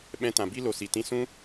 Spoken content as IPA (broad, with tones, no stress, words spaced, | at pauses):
ɓɛ̃˧tã˨bi˦ lo˨si˨ tĩ˧ sũ˦